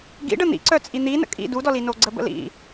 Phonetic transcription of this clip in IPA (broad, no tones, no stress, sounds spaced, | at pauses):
ɡ ḭ ɖ ə n̪ ḭ ǀ œ t͡sʼ i n̪ i n ə̰ kʼ ḭ d u d ɔ l i n o ɡ͡ǀ ə b ə̰ l ḭ